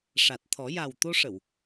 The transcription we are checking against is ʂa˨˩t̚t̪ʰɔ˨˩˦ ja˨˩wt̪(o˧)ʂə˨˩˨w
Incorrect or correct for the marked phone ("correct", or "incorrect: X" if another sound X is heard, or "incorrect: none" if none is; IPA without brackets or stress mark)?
correct